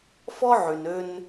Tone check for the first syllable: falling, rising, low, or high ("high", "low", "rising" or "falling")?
high